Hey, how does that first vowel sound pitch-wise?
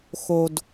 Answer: low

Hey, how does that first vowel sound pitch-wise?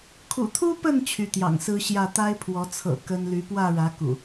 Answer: low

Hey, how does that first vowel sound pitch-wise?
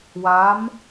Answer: rising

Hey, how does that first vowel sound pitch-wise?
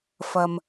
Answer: low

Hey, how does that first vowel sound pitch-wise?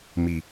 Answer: low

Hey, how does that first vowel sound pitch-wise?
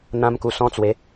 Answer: high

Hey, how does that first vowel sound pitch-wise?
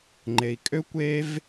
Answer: low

